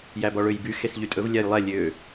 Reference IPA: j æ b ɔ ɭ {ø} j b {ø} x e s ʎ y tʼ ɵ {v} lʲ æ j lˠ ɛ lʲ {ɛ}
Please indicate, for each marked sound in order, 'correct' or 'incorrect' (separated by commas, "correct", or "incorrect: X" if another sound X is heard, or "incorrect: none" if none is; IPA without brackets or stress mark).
correct, incorrect: y, correct, incorrect: ø